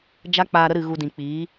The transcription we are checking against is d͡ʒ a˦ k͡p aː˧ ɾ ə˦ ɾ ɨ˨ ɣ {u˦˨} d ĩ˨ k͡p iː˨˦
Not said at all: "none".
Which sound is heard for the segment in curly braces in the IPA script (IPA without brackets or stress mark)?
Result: u˧